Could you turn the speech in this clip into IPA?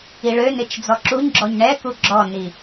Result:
i ɭ ø n ɪ t͡ʃ d͡z ɔ ǁ u ɲ ɡ͡ǁ ɔ ɲ ɳ ɛ k u ɡ͡ǁ ɔ n i

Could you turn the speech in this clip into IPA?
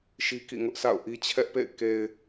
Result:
ʃ i˦ k ḭ˦˨ ŋ ʊ˦ ʔ sʰ a̰˦˨ ʊ̯ ʔ i˦ t͡ɕʰ ɛ˦ ʔ p ḛ˦˨ ɪ̯ k e˨ ɪ̯

